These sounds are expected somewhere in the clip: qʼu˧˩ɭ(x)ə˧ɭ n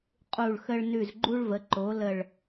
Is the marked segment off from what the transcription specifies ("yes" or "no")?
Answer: no